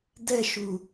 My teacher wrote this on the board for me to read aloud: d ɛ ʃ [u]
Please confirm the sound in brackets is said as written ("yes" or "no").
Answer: yes